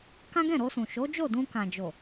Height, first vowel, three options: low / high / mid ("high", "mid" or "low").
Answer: low